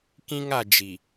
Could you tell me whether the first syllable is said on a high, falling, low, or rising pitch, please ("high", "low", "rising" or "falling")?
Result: high